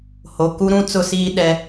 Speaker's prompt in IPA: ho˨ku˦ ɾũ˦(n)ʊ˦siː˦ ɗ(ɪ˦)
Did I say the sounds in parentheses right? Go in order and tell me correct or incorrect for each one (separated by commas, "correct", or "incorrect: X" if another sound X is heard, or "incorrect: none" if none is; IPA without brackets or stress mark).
incorrect: t͡s, incorrect: ɛ˦